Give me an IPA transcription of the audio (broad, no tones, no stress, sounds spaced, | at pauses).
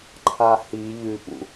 ǃʰ a h i ʎ ʉ p ṵ